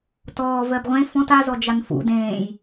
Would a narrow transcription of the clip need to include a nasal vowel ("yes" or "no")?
yes